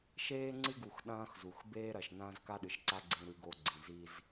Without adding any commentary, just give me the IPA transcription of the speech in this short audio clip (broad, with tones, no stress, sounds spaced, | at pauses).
ʃ eː˦ ŋ͡ǀ ɨ˦ ɡ u˨ x ɗ ɐ̃ː˦ x z u˨ x b eː˦ ɾ ɐ˨ ʃ n ɐ̃ː˦ z k a˦ ɗ ɨ˨ ʃ ǀ a˦ ɡ͡ǀ ĩ˦ ɾ ʉ˦ ɡ o˦ ɡ͡ǀ ĩ˨ z i˦ z